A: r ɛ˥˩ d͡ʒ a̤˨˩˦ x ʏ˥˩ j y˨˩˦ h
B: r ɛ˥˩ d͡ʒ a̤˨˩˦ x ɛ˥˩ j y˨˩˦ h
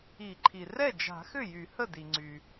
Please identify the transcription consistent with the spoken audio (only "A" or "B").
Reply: A